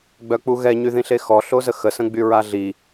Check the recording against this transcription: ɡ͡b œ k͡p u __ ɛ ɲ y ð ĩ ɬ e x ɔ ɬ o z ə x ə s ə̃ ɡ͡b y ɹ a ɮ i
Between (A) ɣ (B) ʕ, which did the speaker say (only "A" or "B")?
A